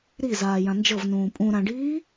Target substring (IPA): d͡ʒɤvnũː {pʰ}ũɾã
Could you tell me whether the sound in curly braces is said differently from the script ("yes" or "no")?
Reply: yes